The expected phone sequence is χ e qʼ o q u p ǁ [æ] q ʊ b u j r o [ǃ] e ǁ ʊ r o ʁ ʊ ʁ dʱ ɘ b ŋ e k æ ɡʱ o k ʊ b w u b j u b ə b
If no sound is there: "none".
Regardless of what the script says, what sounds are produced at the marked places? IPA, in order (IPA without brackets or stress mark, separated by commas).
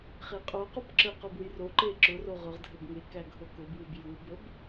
ə, ǃ